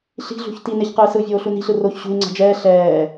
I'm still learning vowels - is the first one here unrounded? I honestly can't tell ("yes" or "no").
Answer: yes